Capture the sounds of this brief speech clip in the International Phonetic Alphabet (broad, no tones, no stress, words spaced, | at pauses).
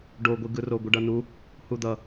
ɖoɡʷi ɡɯro ɡʷɯɖʌnu | hud̪ʌ